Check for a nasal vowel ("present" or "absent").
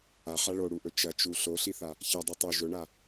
absent